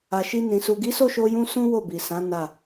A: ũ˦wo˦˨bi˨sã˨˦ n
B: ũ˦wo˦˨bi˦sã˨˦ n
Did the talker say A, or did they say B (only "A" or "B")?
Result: A